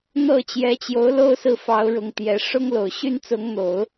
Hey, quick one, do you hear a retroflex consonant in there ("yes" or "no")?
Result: yes